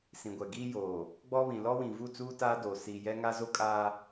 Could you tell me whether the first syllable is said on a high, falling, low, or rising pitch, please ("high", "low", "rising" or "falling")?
low